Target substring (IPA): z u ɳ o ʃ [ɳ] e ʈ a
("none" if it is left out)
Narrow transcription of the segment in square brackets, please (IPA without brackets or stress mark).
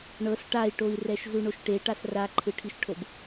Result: ʈ